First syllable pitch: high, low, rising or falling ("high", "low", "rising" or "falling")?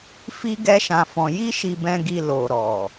high